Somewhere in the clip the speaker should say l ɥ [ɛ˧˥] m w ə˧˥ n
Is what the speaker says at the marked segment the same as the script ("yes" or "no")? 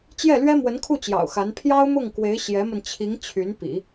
no